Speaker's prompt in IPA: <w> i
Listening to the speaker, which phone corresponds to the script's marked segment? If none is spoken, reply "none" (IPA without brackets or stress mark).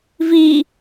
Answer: v